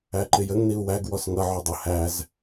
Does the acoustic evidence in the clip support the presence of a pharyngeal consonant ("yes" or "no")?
yes